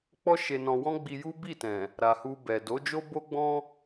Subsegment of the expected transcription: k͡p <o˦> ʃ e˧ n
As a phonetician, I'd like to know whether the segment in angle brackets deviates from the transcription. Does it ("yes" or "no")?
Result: yes